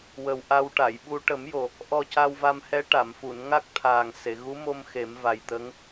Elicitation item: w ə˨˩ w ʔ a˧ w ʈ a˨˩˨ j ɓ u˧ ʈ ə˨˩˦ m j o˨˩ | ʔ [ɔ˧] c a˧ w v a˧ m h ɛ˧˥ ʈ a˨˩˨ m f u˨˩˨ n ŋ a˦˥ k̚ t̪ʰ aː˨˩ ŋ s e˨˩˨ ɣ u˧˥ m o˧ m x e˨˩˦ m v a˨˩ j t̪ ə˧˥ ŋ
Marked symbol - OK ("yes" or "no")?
yes